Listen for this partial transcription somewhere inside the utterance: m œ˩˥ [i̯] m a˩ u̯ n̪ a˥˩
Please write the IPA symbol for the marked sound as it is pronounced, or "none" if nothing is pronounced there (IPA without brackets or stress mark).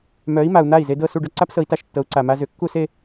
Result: i̯